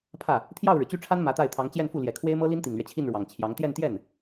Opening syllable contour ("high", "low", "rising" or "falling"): falling